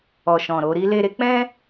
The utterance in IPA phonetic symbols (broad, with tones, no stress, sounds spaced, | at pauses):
ɔ˨ ʃ ɔ̃˨ ɾ o˧ ɾ i˦ l e˧ ɾ e˦ k͡p ɛ̃˦